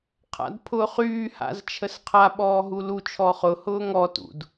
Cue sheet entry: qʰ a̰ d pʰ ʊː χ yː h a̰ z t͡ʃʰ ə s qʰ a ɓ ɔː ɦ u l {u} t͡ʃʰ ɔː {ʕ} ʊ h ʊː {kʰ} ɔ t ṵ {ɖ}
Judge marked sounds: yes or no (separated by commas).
yes, no, no, no